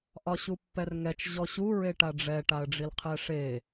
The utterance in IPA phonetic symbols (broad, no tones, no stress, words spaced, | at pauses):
ʔɒɕupːɛrŋɛt͡ʃ ʑɔɕu ɹeʈaɖ͡ʐɛ ʈaə̯ɖ͡ʐilqʰɛʂe